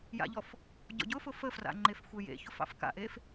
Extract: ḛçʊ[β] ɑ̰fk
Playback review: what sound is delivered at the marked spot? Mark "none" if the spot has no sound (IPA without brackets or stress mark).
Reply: f